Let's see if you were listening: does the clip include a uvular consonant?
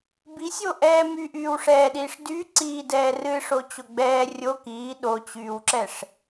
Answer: no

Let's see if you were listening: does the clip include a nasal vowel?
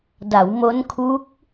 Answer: no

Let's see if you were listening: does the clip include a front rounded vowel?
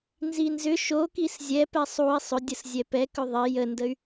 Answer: yes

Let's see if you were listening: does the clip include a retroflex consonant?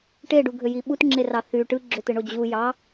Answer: yes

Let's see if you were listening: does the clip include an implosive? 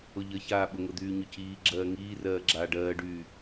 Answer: yes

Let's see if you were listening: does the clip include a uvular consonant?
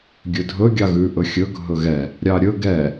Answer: no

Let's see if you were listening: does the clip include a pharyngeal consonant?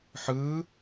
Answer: yes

